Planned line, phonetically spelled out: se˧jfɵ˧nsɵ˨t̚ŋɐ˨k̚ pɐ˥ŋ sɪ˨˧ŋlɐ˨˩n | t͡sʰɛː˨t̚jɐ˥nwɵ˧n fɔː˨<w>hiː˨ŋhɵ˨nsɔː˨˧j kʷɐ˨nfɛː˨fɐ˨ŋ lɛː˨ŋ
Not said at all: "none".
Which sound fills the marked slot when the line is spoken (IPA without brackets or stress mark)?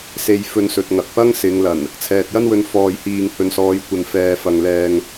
j